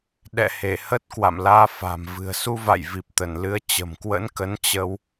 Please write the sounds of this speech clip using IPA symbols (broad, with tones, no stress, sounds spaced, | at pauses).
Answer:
ɗ ɛ̰˧˨ h e˧˩ h ə˦˥ t̚ k w a̰˧˨ m l aː˧ f a̤˨˩ m v ɨ̤˨˩ ə̯ s u˧ v a̰˧˨ j v i˨˩ p̚ t̪ ə˧˩ n l ɨ˨˦ ə̯ t͡ɕ ə̤˨˩ m k w ə̰˧˥ n k ə˨˦ n t͡ɕ ə˧ w